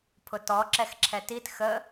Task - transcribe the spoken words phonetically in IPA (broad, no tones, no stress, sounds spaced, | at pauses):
pʰ ʊ t ɔ ǁ ɛ x ǁʰ ɛ t i t x ə